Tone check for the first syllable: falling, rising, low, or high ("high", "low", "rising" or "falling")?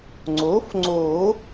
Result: rising